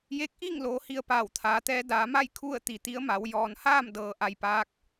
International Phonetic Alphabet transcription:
j e˧˥ k̚ ʔ iː˥˨ ŋ l oː˩˧ h i˧ ə̯ p aː˧˩ w t̪ʰ aː˩˧ t̪ ɛː˧˥ d aː˩˧ m a˥˨ j kʰ u˥˨ ə̯ t̪ i˩ t̪ i˧˥ ə̯ m a˩˧ w j ɔː˩ n h aː˥˨ m d ɤː˩ ʔ a˧ j p aː˧˥ k̚

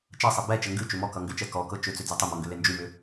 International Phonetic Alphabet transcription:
t͡ʃ ʌ sˤ ɛ b ɛ t͡ʃ ə ŋ ɡ ʉ t͡ʃ ʏ m ɔ k ʌ ŋ ɡ ʏ t͡ʃ ɛ k ɔ k ɤ t͡ʃ ʏ t͡s ʏ d͡z ɛ tˤ ʏ m ɔ ŋ ɡ ʏ l e n d͡ʒ ʉ m ʏ

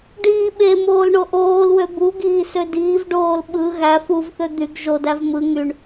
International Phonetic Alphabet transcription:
ɖ iː ɓ e m oː l ɳ o ʔ oː l w ø b u ɡ iː s ø d iː v ɖ oː l ɓ ɯ ɣ æ f u v θ ø d̪ y ɡ ʒ o d æ v m ɯ ŋ y ɳ

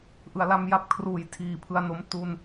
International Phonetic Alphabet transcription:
ʔ ɯ˩˦ a̯ l a˦˥ m j a˦˥ p̚ kʰ r uː˨˩ j tʰ iː˨˩ pʰ ɯ˧ a̯ n o˦˥ m t u˧ n

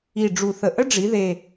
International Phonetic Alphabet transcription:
i˨˩ ɖ͡ʐ u˨˩ θ ə˨˩ ʔ ə˥ ɖ͡ʐ i˩˧ ð e˨˩

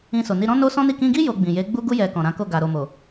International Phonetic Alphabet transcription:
ĩ˧ s o˨ n i˧ ɾ ɔ̃˦ n o˦ s ɔ̃˦ n i˦˨ k ĩ˧ ɡ i˦ j o˧ ɡ͡b ĩ˨ j e˨˦ ɡ͡b u˦ ɡ u˦ j ɛ˧ k ɔ̃˨ ɾ ã˨˦ k o˦˨ ɡ a˨ ɾ o˨ m o˨

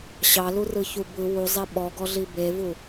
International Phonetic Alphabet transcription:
ɕ ɑ l u r ɯ ç u b ɯ w u zˤ e ɓ ɔ ɡ ɔ ɮ i b e v u

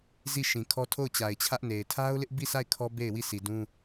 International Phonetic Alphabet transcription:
z i˦˨ ʃ ĩ˨ kʰ ɔ˦ tʰ o˦˨ ʊ̯ t͡ɕ a˨ ɪ̯ t͡ɕʰ ä˦ ʔ n e˨ ɪ̯ tʰ a˦ ʊ̯ l ɪ˦ ʔ b i˦˨ s a˦˨ ɪ̯ kʰ ɔ˦ b e˦˨ ɪ̯ w i˦˨ sʰ i˨ d ũ˦

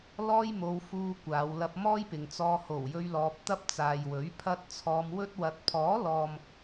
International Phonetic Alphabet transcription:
l ɔː˥ j m o˧ w f uː˧ kʷ aː˨˧ w l ɐ˧ p̚ m ɔː˥ j p ɪ˨ ŋ t͡s ɔː˧ h o˨˩ w j ɵ˧ ɥ l ɔː˧ p̚ t̪ ɐ˥ p̚ t͡s aː˨ j w ɵ˨˥ ɥ pʰ ɐ˧ t̚ t͡sʰ ɔː˧ m w ɵ˥ t̚ w ɐ˧ t̚ pʰ ɔː˨˥ l ɔː˨ m

